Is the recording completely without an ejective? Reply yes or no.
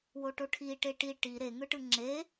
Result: yes